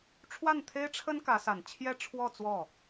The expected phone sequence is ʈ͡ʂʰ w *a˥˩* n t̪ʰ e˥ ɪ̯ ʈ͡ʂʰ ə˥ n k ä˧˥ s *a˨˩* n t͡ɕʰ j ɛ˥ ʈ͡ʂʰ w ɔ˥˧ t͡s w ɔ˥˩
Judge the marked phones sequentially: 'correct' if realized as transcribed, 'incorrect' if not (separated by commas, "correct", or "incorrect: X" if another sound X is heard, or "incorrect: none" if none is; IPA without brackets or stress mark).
correct, correct